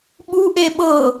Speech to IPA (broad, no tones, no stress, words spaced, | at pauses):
ɓu ʔeɓɤ